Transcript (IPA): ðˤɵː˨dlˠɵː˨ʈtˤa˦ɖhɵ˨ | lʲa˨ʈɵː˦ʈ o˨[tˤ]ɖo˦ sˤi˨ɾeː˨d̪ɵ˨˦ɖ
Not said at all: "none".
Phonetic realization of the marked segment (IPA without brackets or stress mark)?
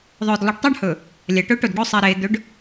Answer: d